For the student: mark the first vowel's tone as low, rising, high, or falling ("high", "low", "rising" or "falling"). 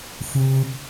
high